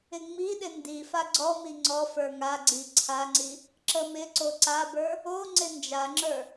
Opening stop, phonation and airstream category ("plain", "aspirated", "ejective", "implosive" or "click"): implosive